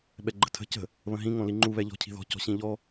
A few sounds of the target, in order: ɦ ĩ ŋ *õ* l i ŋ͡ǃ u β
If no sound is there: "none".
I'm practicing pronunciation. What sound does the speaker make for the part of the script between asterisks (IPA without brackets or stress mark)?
õ